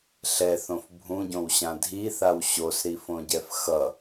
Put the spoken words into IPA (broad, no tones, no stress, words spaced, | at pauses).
ɬɛθõf bʱũɟõwɕã dʱiθaw ɕosɾifõɟɛf xʌ